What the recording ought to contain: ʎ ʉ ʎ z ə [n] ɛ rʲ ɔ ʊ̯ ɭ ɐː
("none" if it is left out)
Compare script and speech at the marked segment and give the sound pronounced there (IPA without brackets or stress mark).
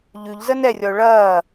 n